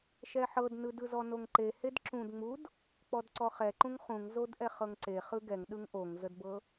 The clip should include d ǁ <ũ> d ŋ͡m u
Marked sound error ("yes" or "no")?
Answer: no